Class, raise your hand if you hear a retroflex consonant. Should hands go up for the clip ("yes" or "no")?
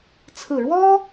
yes